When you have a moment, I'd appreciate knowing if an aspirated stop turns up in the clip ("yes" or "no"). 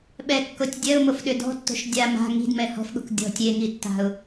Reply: no